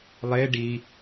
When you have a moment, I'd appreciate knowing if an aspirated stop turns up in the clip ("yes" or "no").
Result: no